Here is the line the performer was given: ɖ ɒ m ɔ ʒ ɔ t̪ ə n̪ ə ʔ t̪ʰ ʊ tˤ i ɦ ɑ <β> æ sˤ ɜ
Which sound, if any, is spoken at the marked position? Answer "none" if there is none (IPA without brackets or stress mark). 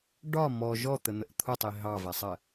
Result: v